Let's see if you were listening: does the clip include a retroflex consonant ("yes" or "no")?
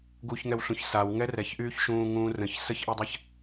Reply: no